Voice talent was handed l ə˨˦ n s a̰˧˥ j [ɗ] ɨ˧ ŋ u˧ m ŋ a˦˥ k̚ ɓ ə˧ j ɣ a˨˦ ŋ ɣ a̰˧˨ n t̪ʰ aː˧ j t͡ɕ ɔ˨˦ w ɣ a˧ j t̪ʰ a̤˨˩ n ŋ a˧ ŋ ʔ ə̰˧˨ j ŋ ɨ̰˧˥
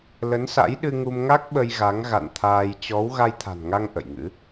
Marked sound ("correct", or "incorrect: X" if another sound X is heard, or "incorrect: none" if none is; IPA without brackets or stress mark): correct